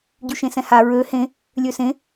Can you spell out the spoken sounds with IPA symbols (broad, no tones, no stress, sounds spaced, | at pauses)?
ɟ y ʃ ẽ s ɛ̃ h a ɹ ø h ẽ | lʲ ø s ẽ